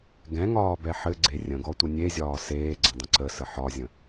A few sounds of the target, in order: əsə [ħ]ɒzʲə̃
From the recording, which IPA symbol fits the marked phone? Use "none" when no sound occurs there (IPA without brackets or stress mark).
ħ